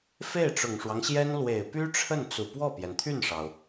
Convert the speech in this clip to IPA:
f e˥˩ ɪ̯ ʈ͡ʂ ʊ˨˩ ŋ ʂ w ɑ˦ ŋ ɕ j ɛ˥ n l w e˨˩ ɪ̯ p y˥ ʈ͡ʂʰ ə˥˩ n t͡s u˨˩ p w ɔ˥˩ p j ɛ˩ n t̪ʰ y˥˩ n ʂ ɑ˩ ʊ̯

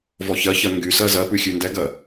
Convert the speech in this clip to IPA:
v ɔ ç ɜ ç ɜ ŋ ɡ y s ɜ z ɜ p ʉ xʲ ʉ n d ɛ ɡ ɜ

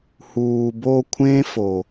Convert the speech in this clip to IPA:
h uː˨ b o˧ kʷʰ ẽ˦ f o˨

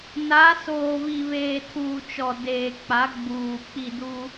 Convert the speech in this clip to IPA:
n a˨˦ s oː˨ β i˨ β eː˨ tʰ uː˨ t͡ʃ ɔ˨ d eː˨ k͡p a˨˦ ɡ͡b uː˨ k͡p i˦˨ d u˦

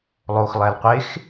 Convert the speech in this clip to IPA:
lˠ o x lˠ æ l qʷ e x

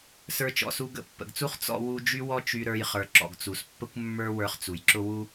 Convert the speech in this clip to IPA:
s ə˞˧ t͡ʃ ɔ̰˩ s u˧ ɡ ə̰˧ pː ə̰˩ ɡ t͡s u˥ χ t͡s ɔ̰˧ w u˧ d͡ʒ y˥ w ɔ˥ t͡ʃ y˧ ɾ ə˞˧ j χ ə˞˩ ǁ ɔ̰˩ ɡ t͡s u˩ s pː ə˥ kʷ mː ə˞˥ w ə˞˧ χ t͡s u˩ j ǁ ʊ˥ w u˥

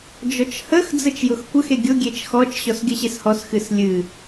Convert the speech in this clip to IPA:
d͡ʒ ɔ t͡ʃ h ə x d͡z ə t͡ʃ j ʊ x kʷ ə x e ɡʲ ʊ ɡʲ e t͡ʃ x ɔ t͡ʃ ɕ ɔ s ɡʲ ə ɕ e s h ɔ s x ɨ s lʲ ɨ

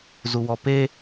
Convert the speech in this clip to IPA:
z u w ɔ p e

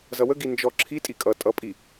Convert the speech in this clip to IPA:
z ʌ w ə ɡ i n d͡ʒ ɔ ǁʰ i tʼ i kʼ ʌ tʼ ʌ pʼ i

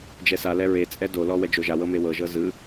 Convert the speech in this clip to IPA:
d͡ʒ ɛ s a l ɛ ɹ e t͡sʼ ɛ d o l ɔ w ɛ d͡ʒ o ʒ a w ɤ m e w ɤ ʒ ɤ z ɯ

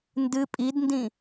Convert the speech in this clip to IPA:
n d ɨ pʼ i d n d ĩ

